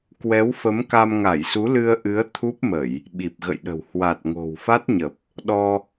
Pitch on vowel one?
rising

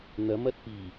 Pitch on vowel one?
rising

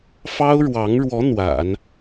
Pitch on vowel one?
high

